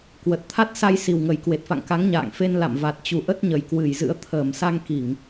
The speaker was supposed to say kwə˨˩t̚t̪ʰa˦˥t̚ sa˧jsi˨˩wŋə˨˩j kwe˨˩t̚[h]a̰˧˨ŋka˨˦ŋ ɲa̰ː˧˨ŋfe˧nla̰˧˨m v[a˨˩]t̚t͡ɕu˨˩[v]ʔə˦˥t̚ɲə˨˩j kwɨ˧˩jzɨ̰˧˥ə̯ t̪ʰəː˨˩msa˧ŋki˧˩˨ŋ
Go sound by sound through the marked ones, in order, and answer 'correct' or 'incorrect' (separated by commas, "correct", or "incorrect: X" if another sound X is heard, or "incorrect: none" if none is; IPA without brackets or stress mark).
incorrect: f, correct, incorrect: none